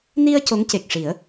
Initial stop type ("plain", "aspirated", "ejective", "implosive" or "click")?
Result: plain